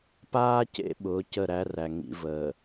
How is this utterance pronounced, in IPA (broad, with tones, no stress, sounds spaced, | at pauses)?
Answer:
p aː˦ c ḛ˦ ɓ ʊː˨˦ c ə˦˨ ɾ æ˦ r æ˨ ŋ ḭ˨ v əː˨